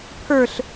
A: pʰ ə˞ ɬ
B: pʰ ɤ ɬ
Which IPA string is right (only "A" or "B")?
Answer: A